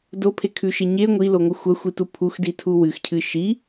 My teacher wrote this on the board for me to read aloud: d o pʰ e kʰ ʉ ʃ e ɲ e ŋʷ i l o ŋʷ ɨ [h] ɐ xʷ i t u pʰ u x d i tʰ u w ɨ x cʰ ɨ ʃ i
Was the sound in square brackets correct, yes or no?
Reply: no